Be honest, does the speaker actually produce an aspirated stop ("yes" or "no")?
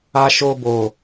no